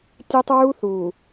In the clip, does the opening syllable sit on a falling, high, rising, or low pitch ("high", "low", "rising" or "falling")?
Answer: high